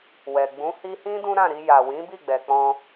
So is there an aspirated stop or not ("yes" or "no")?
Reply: no